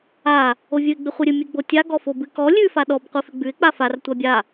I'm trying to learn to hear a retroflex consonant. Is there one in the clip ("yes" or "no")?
no